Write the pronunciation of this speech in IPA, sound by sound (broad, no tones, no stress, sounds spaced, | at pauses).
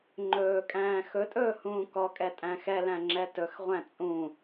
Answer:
ŋ͡ǃ ɵː kʼ æ̃ː x ɵ tʼ ɵː h ũː k ɔ kʼ ɛ tʼ æ̃ x ɛ l æ̃ ŋ͡ǁ ɛ t ɵ x ʁʷ æ̃ t͡sʼ ũ